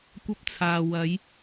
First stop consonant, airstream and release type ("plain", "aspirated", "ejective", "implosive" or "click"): plain